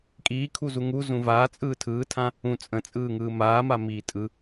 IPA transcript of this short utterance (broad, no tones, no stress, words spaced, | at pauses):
kʼiːkʰuzu ŋuzũ vaːt͡sʼɯː tʰɯːtʰã | ũ t͡sʼə̃t͡sʼɯːŋɯː maːmamiː tʼɯ